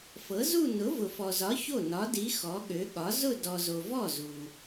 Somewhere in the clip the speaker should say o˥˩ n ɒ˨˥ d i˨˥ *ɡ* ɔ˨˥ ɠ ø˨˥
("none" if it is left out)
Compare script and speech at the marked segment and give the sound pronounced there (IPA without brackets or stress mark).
x